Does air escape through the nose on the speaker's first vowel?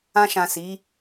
yes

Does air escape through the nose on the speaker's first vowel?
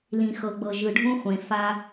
yes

